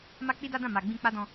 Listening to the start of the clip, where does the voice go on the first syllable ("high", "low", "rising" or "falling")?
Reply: high